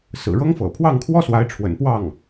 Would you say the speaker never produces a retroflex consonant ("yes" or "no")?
no